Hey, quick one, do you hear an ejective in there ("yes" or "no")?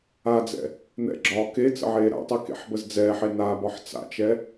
no